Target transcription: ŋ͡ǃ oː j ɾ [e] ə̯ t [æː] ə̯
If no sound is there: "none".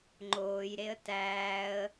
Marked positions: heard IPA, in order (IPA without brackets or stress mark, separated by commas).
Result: e, æː